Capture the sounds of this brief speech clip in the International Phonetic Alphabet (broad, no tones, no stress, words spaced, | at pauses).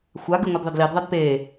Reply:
xʷaɡɨ ŋʷɐdðˤɐdlidðˤad pe